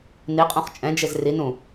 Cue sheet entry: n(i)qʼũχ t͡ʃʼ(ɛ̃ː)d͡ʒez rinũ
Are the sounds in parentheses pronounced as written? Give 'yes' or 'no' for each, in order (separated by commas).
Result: yes, no